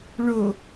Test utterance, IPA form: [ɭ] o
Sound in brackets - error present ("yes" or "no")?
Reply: no